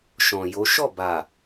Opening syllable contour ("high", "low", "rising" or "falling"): low